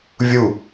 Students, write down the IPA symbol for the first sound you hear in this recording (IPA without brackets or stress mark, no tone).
vʲ